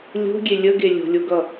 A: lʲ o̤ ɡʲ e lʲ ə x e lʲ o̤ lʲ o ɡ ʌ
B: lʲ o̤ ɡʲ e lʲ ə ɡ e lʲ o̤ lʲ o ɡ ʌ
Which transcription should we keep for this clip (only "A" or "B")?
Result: B